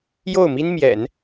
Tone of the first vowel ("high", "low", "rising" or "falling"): falling